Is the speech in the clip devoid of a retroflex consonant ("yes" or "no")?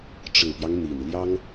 no